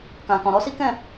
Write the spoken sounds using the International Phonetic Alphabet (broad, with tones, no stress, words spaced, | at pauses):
kã˨kɔ̃˨ɾɔ˨˦ si˦kɛ̃˦˨